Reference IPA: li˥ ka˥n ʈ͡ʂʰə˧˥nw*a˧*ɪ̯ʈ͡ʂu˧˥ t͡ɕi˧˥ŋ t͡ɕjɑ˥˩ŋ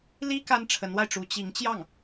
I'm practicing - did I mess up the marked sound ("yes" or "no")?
no